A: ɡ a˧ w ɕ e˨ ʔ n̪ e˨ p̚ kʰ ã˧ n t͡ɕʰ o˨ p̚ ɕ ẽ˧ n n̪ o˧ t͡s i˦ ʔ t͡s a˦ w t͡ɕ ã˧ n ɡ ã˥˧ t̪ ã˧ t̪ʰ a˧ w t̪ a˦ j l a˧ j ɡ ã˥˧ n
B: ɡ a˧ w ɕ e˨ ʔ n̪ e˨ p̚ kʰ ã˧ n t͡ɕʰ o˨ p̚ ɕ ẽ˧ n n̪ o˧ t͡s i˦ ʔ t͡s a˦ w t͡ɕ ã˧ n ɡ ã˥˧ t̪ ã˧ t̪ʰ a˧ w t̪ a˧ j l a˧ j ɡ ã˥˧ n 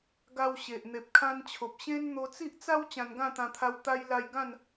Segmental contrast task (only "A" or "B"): B